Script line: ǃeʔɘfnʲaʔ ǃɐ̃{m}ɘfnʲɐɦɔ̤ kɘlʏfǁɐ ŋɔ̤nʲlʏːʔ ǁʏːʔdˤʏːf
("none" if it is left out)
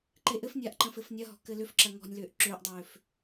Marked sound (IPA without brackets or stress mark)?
f